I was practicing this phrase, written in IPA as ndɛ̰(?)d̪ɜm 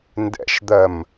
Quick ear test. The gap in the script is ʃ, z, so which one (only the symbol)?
ʃ